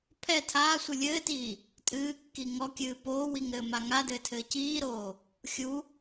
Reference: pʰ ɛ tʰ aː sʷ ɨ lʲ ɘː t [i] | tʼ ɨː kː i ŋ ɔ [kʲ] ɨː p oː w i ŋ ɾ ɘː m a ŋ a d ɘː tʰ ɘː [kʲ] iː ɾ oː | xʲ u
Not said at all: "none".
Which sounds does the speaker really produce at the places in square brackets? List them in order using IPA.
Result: iː, kʲ, c

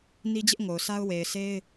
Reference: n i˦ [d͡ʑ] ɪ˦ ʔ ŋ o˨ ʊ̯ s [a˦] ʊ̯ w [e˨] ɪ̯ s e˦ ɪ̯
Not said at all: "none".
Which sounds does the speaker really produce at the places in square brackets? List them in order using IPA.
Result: d͡ʑ, a˦, e˨

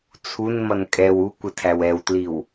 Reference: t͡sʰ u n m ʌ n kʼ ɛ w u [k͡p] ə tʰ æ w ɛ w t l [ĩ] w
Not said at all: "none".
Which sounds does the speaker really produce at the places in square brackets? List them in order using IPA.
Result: kʷ, i

